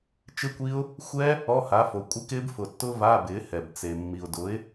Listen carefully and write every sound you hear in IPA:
t͡ʃ ɪ˦˥ kʷ i˦˥ ʊ̯ | xʷ ɛ˦˥ | ɔ˧˥˧ h a˩˥ f o˩ kʷʼ ɪ˦˥ k ɪː˦˥ b f ʊ˩ tː ʊ˦˥ v a˧˥˧ b ɪː˩˥ h ɛ˩ b t͡s e˩ mː i˩ ʊ̯ d ʊ˩˥ ɪ̯

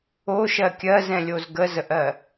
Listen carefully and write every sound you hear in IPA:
o ʃ ɜ kʲ ɜ z ɛ̃ lʲ o z ɡ ə z ə ʔ ɜ

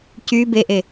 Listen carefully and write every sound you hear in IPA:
c y b e ʔ e

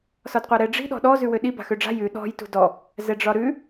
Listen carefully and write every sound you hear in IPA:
s ɒ d qʷ a ɾ ɛ ɖ͡ʐ i̤ ɗ ɔ̤ ɗ ɔ z ʉ w ø ɗ i b a̤ x ø ɖ͡ʐ a̤ j ʉ ɗ ɔ̤ j t ṳ d ɔ | z ɛ ɖ͡ʐ ɒ ɾ ʉ

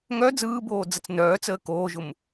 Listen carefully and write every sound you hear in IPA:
ŋ œ d͡z ɯː b oː d͡z ə t͡s n œː t͡s əː k oː ʒ ʊ m

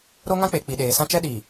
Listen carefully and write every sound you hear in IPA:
ɾ o˦ ŋ ã˦ k͡p e˨ k͡p i˨ ɗ eː˨ s ã˦ t͡ʃ ɛ˦ ɗ iː˨

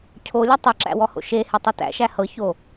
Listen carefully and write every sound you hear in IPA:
cʰ o lʲ ʌ tˤ ə ǁ æ̰ w ɔ h o̰ ʃ e h e tˤ u t æ̰ ʃ æ h ɤ ç o

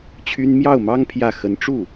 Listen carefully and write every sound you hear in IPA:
t͡ɕʰ y˥ n m j ɑ˥˩ ʊ̯ m ɑ˥ ŋ pʰ j ä˥˩ x ə˧˥ n ʈ͡ʂ u˥˩

